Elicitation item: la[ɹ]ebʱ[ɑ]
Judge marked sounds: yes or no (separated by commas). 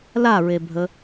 yes, no